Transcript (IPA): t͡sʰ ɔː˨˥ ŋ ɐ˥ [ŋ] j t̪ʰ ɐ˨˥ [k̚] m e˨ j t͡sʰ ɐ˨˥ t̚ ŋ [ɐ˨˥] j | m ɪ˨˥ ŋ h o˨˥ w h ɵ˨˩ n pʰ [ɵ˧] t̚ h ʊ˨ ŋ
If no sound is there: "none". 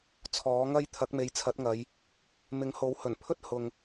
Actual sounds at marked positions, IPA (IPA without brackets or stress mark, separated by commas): none, k̚, ɐ˨˧, ɵ˥